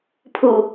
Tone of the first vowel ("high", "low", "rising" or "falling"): low